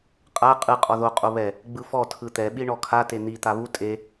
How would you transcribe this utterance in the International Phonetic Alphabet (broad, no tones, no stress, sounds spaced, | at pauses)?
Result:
qʼ a qʼ ɯ qʼ ɔ ð o qʼ o β ɛ | ɡ͡b ɯ f ɔ tʰ ɯ t̪ ɛ ɓ i ɳ ɔ kʰ a t e n̪ i t̪ a β u tʼ e